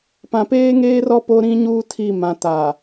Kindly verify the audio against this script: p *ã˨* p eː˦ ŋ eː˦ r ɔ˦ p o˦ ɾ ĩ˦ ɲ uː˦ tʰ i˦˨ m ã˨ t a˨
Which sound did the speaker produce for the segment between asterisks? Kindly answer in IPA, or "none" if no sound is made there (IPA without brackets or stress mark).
ã˨